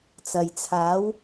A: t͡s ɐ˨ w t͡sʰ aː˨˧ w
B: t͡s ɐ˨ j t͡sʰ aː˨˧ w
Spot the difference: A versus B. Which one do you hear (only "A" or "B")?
B